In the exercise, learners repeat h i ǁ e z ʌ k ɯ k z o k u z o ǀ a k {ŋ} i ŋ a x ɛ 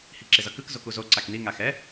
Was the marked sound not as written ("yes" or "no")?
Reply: yes